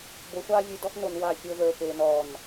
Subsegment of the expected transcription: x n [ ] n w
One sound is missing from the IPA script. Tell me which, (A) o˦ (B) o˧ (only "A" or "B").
B